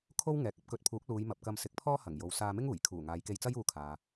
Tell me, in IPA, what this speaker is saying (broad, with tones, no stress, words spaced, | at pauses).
kʰo˥wŋɛː˨k̚ɐ˥p̚ kɵ˨˥t̚pʰuː˨˥k̚ luː˨˧jmɐ˨p̚kɐ˧m sɪ˨˥k̚pʰɔː˥ hɐ˨˩ŋjo˨w saː˧mɪ˥ŋuː˨˩j kʰuː˨˩ ŋaː˨˧jke˧jt͡sɐ˥j uː˧kʰaː˨